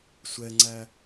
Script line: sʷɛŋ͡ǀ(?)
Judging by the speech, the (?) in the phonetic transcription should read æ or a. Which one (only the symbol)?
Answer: æ